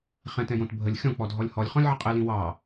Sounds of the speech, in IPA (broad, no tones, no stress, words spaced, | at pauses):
χɛ̃tɛ̃jõt bʱəlʲ xʲɔ̃k͡pɔdʱɔlʲ hɔlʲχɔ̃lʲʕə qʼɪlĩ wɑ